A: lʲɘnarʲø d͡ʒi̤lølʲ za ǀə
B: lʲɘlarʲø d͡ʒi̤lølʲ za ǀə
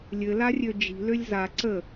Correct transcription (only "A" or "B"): B